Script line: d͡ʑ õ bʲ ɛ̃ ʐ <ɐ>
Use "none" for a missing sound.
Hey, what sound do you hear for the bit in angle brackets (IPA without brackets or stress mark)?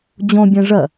ɐ